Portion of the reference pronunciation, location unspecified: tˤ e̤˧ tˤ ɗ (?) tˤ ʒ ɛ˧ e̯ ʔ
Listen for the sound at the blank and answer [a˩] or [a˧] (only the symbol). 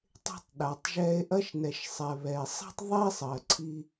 a˩